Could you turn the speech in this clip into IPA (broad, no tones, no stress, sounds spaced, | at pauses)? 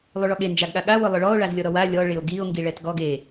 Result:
lˠ u ɭ ɔ ɠ e n d͡ʒ a ɡ ɠ a ɠ a w ʊ lˠ ʊ ɭ ɔ o̯ ɭ a z lʲ ɔ ɾ ɔ w a lʲ ɔ ɭ ɪ o̯ ɡ i o̯ ŋ ɡ i ɭ ɛ t ɡ ɔ ɡ e